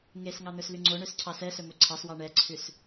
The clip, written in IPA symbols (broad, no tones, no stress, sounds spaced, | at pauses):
ŋ e s ŋ ɑ n̪ ɵ s l y ŋ͡ǀ o ɳ ø s cʰ ɑ s ɛ s ɵ m ɵ ǀʰ ɑ s w ɑ ɳ ɛ ǀʰ ʉ s